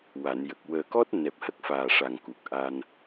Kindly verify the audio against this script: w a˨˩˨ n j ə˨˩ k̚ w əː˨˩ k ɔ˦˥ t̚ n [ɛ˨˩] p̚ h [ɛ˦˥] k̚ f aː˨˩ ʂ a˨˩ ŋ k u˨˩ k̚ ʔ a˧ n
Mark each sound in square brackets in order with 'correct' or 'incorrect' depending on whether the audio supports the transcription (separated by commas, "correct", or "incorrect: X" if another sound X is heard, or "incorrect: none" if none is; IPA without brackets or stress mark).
correct, incorrect: ə˦˥